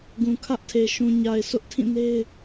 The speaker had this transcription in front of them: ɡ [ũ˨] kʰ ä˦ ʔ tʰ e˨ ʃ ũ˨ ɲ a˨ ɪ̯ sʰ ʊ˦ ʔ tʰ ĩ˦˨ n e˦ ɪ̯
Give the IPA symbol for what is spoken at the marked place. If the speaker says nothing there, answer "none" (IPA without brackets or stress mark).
ũ˨